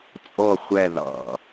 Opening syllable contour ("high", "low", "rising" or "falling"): falling